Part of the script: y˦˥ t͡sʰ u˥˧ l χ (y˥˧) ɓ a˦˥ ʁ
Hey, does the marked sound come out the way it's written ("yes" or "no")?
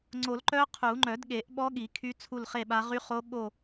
no